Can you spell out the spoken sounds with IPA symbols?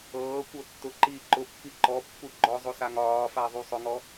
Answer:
ɤː kʷ ɤ tː ʊ ǃ iː ǃ ʊ pː i ǃ ɔ pː u ɡ͡ǃ ɔ zˤ o s a ŋ ɒː f a ðˤ u sˤ ʊ ŋ ɔ

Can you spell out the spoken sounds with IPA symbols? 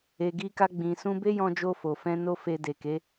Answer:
e˨ ɡ i˧ k a˧ ɡ͡b ĩ˨ s ũ˧ b e˦ j ɔ̃˧ d͡ʒ o˧ f o˨ f ɛ̃˧ n o˦ f e˧ d e˨ k e˨˦

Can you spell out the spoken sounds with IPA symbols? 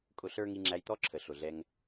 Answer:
kʼ ʊ˧ ɬ ə˞˦ ŋ i˧ ŋ͡ǁ æ˧ j t̪ ɔ˦ ǁʰ ə˨ ɬ ʊ˨ ɮ ɛ˧ ŋ

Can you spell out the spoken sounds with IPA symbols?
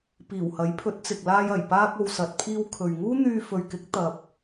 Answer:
p iː˨˩ w h ɐ˨˥ j pʰ ɵ˨˥ t̚ t͡s ɪ˨ k̚ l aː˧ j ɐ˨˩ j p aː˧ k̚ o˨ w s ɐ˨ t̚ pʰ iː˧ w kʰ ɵ˨ ɥ ŋ uː˥ n̪ yː˧ f ɵ˨ ɥ k ɪ˨˥ k̚ t̪ ɐ˧ p̚

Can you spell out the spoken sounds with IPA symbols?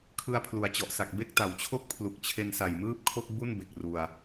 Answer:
kʰ ɯ˧ a̯ pʰ l u˩˦ a̯ t͡ɕ ɔ˨˩ ʔ s a˨˩ k̚ b e˥˩ k̚ t a˩˦ w t͡ɕʰ o˥˩ k̚ pʰ l u˨˩ k̚ t͡ɕʰ e˧ n s a˨˩ j m ɯː˥˩ p̚ kʰ o˥˩ k̚ b u˥˩ n b e˨˩ k̚ r u˧ a̯

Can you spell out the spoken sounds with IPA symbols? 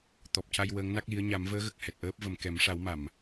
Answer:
t̪ ɔ˨˩ p̚ c a˧ j w əː˧˥ ŋ n a˦˥ k̚ l i˧˥ ə̯ ɲ a˨˩˦ m v əː˧˥ ɣ ə˨˩ k̚ h ɛ˨˩ t̚ ʔ əː˦˥ p̚ v ə˨˩ m k ɛ˨˩˦ m ʂ a˨˩˦ w m a˨˩˨ m

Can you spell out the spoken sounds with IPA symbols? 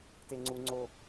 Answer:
t e ŋ͡ǀ u ŋ͡ǀ o

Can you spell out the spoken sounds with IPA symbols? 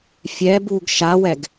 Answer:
fʲ ɛ b u ɡ ʃ a w ɛ ɡ

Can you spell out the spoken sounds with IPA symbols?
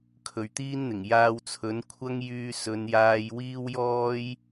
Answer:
kʰ ɵ˨ ɥ t̪ iː˥ n n̪ ɪ˨˩ ŋ j aː˧ w t͡sʰ ɵ˨˥ n kʷʰ ɐ˥ ŋ j yː˧ s ɵ˨˧ n j aː˧ j w iː˥ w j ɔː˥ j

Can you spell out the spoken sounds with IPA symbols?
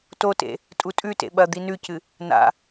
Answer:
t o t ḛ | tʼ u tʼ ʉ t ḛ ɓ ɐ d̪ i n ʉ c ɨ | n a̰

